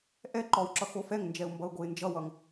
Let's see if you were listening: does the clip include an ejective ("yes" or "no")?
no